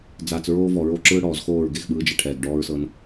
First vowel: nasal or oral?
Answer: oral